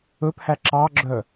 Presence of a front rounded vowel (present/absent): present